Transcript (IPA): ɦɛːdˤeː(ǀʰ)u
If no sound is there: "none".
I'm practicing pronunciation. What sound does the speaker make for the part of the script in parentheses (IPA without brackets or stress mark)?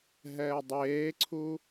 ǀʰ